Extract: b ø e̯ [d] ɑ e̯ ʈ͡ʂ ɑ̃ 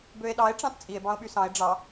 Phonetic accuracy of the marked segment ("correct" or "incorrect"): incorrect